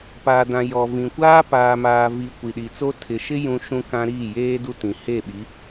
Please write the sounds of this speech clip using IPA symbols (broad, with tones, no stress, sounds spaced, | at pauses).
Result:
p aː˨ d ã˨ j ɔ˨ v ĩ˨ kʷ aː˦ p aː˨ m aː˨ v i˨ kʷ i˨ ɗ i˨ t͡s o˦ tʰ ɪ˨ ʃ ɪ˦ j ũ˦ ʃ ũ˦ k ã˦ ɾ iː˦˨ j eː˦ d u˦ t ĩ˨ h e˦˨ ɓ i˨˦